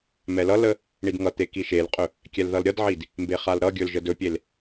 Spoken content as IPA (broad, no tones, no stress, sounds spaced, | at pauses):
m ɛ l ʌ l ə | ɳ i d ŋ ʌ t̪ e k i ʃ e l qʼ ɵ | kʲ ɛ l ð ʌ l ɾʲ ʌ d ʕ i d | m b e χ a l ɾ ʌ ɡʲ ɵ l ʒ ə d ɵ pʲ e l